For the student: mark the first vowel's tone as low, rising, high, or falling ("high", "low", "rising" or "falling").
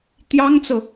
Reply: high